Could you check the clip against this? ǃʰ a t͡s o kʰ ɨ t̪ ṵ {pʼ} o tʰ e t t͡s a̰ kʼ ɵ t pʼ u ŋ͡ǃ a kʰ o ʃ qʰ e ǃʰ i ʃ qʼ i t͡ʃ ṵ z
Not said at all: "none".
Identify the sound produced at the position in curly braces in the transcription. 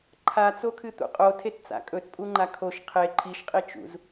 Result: qʼ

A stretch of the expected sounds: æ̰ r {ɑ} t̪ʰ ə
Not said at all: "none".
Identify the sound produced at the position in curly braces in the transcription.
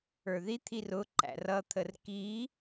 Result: ʌ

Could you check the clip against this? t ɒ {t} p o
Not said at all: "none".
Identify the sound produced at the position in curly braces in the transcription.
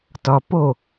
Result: none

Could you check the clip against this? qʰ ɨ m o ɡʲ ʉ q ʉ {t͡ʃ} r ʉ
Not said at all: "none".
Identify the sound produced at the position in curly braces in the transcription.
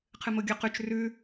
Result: t͡ʃ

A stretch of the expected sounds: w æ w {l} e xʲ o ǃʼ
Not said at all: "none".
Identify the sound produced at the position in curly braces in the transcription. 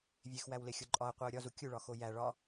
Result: l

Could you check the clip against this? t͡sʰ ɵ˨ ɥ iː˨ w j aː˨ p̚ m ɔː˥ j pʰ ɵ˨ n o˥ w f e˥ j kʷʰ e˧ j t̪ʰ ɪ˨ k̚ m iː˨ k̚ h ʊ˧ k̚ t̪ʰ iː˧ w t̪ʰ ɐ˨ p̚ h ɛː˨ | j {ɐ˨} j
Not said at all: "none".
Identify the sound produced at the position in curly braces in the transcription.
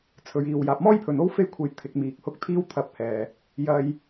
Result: ɐ˧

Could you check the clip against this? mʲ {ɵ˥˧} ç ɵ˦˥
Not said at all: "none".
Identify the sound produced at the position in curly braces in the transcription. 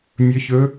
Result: ɵ˦˥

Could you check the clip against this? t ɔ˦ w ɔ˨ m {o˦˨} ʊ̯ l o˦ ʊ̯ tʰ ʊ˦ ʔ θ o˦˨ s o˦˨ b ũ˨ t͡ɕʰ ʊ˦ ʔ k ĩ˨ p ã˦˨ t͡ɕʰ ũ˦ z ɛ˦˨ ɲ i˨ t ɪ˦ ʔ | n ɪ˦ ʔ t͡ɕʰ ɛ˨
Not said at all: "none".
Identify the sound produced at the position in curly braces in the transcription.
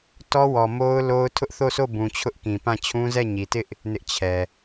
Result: o˦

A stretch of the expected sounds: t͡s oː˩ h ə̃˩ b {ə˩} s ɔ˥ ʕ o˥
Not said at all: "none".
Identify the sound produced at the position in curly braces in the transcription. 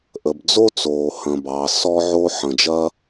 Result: ɑ˩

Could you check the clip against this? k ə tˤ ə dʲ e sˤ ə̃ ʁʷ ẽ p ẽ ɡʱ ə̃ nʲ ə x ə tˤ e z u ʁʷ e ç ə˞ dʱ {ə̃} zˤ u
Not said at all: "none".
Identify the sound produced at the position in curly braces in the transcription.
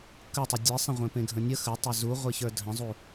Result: ə̃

